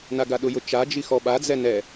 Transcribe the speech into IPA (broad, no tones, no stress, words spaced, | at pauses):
naɡaɗʊjʊ t͡ʃad͡ʒi xɔɓad͡zɛ nɛ